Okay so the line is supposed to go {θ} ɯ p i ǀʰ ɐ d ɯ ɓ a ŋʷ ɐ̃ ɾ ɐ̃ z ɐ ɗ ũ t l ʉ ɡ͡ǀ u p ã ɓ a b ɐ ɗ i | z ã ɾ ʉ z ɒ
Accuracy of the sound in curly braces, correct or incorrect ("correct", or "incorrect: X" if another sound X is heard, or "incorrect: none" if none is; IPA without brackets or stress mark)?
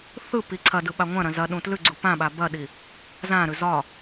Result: correct